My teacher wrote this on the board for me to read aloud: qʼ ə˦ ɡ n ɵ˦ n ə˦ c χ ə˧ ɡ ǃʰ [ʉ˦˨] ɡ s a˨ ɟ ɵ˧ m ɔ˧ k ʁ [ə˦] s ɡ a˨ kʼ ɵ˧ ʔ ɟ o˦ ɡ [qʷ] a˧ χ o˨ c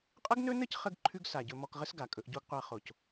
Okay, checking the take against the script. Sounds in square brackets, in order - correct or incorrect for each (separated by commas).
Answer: incorrect, correct, correct